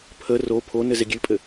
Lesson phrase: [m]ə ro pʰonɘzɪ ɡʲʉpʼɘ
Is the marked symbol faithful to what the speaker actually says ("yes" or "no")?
no